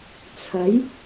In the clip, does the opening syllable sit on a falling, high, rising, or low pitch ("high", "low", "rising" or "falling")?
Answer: rising